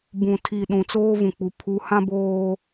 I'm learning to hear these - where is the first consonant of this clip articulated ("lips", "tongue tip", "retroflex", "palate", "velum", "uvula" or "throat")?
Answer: lips